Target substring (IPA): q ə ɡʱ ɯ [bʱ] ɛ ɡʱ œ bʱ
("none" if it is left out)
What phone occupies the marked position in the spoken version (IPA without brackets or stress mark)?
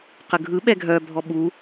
ɓ